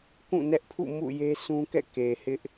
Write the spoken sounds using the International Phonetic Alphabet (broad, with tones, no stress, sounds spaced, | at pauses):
k ũ˦˨ n ɛ˦ ʔ pʰ ṵ˦˨ m ṵ˦˨ j e˦ s ũ˦ k ɛ̰˦˨ k e˨ h ɪ˦ ʔ